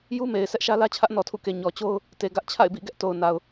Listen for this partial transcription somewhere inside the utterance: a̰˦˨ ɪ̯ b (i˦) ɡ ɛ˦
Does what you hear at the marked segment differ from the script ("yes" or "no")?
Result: yes